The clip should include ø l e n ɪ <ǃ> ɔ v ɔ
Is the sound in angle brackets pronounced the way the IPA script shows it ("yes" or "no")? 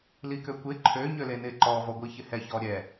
yes